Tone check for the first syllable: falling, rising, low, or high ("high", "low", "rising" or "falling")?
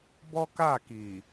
high